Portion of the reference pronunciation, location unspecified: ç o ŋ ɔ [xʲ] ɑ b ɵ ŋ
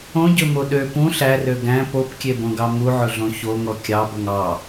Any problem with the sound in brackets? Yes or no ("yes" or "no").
yes